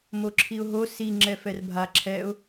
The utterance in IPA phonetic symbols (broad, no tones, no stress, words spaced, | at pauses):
moǁʰiʊ̯ɦo si ŋ͡ǁɛfɛrbʱa ǁʰɛʊ̯